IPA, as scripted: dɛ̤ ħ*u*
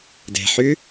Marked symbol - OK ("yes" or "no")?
no